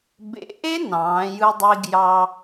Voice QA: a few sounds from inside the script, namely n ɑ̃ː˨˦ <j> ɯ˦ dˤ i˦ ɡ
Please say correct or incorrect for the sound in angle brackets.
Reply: correct